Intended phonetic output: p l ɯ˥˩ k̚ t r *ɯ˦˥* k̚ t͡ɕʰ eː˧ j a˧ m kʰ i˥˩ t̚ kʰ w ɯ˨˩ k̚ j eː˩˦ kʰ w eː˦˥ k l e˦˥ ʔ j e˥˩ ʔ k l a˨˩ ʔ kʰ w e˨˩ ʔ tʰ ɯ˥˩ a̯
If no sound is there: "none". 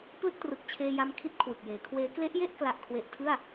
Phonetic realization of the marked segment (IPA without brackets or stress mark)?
ɯ˨˩